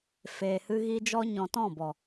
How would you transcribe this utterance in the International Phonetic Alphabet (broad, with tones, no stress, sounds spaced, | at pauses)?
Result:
f eː˨ h ɨ˧ ɣ i˧ d͡ʒ ɔ˧ ɲ ɔ̃˨ t ɔ̃˦˨ b ɔ˨